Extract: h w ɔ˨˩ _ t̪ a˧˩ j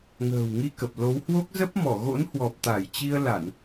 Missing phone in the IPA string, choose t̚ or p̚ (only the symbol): p̚